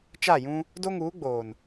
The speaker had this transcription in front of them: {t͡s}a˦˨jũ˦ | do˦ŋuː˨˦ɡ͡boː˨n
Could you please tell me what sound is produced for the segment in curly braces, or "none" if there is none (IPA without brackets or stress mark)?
t͡ʃ